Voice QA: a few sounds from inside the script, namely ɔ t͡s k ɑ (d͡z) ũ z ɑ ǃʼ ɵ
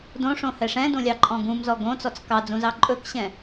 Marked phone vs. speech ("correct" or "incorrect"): correct